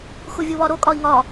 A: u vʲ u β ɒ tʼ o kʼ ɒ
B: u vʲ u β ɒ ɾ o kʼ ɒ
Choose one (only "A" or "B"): B